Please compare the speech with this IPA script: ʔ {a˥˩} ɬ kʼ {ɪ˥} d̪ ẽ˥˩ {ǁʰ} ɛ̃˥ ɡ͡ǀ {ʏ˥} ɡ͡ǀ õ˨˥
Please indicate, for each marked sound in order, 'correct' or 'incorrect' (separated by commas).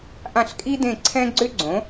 incorrect, incorrect, incorrect, correct